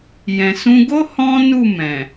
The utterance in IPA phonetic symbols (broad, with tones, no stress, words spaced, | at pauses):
jɛ̃˨sũ˧ɡo˦ hɔ̃˦nu˦˨ mɛ̃˨